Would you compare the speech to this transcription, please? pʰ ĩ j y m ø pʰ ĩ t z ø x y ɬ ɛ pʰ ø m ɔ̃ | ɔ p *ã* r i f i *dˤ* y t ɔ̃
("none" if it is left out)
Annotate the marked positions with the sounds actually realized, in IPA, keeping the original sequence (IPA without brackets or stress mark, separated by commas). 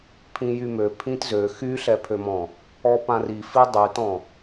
ã, dˤ